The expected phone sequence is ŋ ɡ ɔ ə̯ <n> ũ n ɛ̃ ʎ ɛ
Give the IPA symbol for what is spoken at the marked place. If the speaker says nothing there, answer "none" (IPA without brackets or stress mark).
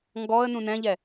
n